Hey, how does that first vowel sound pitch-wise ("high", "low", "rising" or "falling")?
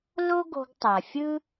high